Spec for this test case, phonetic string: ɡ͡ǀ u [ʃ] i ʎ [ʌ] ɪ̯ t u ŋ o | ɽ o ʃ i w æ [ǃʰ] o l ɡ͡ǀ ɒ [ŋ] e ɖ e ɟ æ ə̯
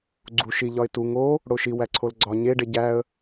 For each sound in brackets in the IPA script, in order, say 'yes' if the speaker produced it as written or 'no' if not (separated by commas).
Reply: yes, no, no, no